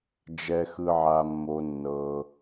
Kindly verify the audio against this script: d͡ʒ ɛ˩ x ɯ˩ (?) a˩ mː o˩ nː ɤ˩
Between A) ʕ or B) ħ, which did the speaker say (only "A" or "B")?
A